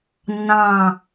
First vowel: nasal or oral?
nasal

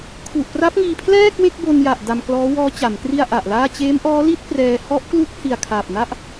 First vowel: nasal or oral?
oral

